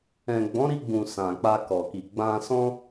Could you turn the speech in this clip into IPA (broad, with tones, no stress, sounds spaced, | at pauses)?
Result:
ɛ̃˨ ɡ͡b ɔ̃˨˦ ɾ i˧ ɡ͡b ũ˨ s ã˨ k͡p a˧ k ɔ˨ k i˨ ɡ͡b ã˧ s ɔ̃˦